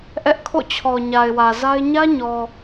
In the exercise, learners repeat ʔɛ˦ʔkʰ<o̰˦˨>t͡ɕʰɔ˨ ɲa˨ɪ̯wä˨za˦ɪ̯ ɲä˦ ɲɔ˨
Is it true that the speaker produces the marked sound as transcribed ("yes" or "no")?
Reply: yes